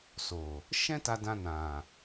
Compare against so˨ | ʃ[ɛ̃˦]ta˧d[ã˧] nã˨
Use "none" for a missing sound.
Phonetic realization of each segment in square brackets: ɛ̃˦, ã˧

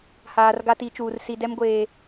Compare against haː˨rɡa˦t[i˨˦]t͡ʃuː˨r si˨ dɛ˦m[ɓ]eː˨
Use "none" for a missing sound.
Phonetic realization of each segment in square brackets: i˨˦, ɡʷ

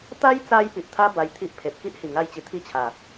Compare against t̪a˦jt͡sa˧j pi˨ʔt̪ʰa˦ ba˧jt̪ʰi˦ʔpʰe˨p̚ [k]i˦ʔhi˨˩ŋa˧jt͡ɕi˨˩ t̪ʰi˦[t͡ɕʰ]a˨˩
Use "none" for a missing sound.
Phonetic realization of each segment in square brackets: k, t͡ɕʰ

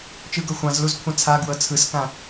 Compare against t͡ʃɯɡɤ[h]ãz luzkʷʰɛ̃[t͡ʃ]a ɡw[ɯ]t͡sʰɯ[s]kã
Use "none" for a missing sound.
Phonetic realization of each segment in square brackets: xʷ, t͡sʰ, ɤ, s

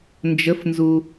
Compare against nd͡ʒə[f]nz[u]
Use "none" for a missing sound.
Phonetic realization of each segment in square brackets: f, u

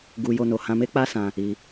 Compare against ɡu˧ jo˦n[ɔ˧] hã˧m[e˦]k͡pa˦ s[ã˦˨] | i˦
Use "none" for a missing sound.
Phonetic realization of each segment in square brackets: o˧, e˦, ã˧

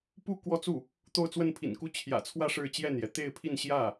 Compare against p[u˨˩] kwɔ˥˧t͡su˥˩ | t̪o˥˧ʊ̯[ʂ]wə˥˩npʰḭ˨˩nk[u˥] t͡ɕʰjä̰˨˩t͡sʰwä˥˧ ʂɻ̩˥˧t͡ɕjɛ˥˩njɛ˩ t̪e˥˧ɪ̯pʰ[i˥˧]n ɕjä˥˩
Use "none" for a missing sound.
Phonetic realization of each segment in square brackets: u˥˧, t͡s, u˥, i˥˧

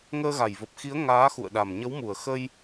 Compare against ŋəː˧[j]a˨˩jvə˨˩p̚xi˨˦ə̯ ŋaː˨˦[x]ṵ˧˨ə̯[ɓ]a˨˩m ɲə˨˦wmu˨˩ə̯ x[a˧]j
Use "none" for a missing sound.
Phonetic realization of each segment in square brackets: ɣ, x, ɗ, ə˧

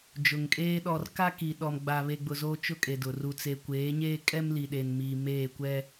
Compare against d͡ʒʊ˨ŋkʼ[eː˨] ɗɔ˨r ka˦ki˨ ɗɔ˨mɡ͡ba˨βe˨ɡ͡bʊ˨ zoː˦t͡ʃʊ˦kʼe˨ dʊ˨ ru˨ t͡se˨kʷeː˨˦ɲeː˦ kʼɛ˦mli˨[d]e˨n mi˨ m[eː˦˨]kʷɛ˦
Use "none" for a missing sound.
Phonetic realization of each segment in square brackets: eː˦, ɗ, eː˦˨

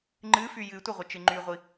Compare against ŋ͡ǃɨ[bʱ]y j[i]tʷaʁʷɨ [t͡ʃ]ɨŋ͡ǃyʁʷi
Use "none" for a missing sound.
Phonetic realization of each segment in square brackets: f, ɨ, t͡ʃ

